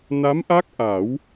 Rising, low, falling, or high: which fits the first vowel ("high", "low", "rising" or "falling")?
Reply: rising